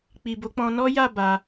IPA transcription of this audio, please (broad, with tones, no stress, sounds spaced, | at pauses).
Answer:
k͡p i˨ b o˨˦ k͡p ɔ̃˧ n ɔ˦ j a˦˨ b a˧